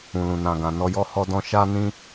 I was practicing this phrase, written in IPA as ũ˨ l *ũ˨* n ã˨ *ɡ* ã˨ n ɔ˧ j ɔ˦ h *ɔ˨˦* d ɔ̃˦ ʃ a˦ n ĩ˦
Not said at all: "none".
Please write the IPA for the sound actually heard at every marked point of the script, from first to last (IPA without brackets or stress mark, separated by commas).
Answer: ũ˨, ɡ, ɔ˦